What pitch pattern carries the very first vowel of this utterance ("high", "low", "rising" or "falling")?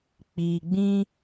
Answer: low